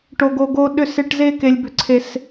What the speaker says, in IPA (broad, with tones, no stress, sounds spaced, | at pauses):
ʈ o˥ ɡ o˥ ɡ o˥ ɗ ʏ˥ s e˥ ʈ z e˥ k e˥ lʲ b ʏ˥ ǀʰ e˥ s